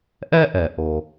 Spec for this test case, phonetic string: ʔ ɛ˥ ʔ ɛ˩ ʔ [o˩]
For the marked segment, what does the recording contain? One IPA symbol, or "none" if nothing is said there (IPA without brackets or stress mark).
o˩